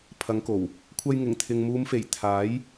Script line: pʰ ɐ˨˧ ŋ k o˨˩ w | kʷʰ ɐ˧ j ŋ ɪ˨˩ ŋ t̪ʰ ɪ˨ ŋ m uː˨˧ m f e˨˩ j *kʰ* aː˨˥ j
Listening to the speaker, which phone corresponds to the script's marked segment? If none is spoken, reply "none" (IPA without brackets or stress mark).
t̪ʰ